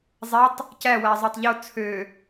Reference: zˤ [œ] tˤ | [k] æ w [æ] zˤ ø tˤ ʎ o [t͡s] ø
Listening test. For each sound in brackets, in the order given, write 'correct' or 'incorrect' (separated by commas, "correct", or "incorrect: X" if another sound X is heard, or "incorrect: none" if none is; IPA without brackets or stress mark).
incorrect: æ, incorrect: c, correct, incorrect: t͡sʰ